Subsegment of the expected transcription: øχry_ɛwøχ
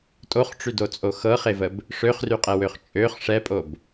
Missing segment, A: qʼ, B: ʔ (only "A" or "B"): A